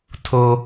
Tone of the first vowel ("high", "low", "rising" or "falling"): low